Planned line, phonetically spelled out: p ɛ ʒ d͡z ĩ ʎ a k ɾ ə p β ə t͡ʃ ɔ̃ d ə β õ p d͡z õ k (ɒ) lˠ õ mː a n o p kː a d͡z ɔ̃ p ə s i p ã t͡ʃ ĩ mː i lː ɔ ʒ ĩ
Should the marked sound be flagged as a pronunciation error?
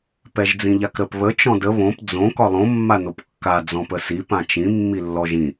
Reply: no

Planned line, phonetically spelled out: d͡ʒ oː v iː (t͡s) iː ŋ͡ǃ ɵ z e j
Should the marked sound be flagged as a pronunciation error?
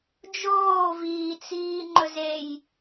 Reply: no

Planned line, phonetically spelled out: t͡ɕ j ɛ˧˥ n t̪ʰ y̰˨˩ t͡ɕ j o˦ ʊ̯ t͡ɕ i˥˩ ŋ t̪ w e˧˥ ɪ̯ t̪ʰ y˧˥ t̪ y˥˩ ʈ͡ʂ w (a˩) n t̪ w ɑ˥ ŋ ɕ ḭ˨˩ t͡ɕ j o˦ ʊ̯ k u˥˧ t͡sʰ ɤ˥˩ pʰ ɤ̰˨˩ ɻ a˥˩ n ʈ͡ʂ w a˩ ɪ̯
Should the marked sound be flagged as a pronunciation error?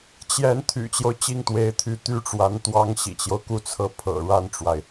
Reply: yes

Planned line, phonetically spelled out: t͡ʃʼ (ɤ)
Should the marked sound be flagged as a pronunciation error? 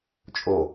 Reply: yes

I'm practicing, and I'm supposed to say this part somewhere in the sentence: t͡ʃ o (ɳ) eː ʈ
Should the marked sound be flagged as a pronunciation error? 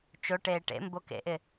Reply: yes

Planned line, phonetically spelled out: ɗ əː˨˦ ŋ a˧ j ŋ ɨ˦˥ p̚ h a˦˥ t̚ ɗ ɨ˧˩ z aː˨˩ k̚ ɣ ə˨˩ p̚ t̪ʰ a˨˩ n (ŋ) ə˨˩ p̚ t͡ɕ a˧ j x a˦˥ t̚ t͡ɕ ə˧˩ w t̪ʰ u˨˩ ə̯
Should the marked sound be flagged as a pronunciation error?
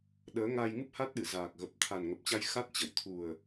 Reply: no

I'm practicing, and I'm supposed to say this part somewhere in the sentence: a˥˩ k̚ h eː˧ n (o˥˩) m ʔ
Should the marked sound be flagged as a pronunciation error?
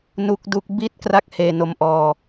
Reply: yes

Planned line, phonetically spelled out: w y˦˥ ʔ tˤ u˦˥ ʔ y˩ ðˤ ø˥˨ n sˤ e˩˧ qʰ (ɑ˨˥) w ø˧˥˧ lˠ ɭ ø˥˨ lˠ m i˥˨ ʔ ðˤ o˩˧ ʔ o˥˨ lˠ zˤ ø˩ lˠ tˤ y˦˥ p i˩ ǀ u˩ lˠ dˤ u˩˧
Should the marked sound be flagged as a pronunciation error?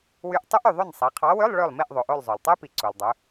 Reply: no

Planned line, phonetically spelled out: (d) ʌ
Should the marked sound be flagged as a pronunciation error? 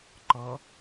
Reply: yes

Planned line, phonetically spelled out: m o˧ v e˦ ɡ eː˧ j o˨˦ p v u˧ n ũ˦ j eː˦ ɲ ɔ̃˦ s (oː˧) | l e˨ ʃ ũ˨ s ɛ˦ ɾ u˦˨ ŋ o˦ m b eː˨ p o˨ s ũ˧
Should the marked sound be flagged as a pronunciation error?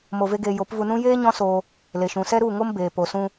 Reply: no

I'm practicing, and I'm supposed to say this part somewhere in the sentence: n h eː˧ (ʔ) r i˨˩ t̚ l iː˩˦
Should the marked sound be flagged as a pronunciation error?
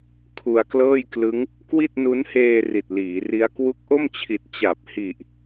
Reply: yes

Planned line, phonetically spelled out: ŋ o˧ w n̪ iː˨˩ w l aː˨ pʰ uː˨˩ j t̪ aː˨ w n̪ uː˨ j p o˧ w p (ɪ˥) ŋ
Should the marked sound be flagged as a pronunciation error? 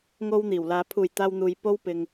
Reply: yes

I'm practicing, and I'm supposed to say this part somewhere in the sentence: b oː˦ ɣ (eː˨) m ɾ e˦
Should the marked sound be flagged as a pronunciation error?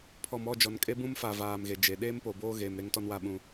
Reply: no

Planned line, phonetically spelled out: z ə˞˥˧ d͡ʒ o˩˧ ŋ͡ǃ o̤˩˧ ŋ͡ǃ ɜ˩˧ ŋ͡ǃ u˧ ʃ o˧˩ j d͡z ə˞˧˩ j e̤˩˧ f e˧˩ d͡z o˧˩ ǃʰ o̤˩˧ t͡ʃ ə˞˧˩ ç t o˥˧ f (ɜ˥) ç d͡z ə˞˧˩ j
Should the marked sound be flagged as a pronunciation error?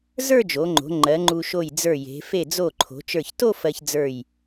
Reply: yes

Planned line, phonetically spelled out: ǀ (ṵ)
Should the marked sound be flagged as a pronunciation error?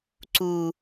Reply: yes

